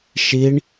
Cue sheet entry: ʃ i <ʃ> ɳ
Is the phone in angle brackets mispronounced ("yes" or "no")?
yes